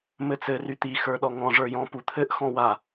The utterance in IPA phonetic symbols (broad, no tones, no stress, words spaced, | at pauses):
mɘt͡sɘ ryt̪i xə˞ɗɔŋɔ̃ ʐə˞jɔ̃p ut̪ʰɘʔ xɔ̃wa